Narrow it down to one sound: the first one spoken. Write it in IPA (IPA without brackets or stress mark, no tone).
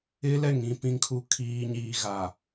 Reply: ɪ